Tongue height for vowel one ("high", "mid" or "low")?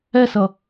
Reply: mid